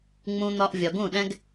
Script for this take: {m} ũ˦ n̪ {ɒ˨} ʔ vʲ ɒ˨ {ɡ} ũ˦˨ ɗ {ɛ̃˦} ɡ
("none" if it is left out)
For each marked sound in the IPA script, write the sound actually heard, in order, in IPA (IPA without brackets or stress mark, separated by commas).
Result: ŋ͡m, ɒ˦, ɡ, ɛ̃˦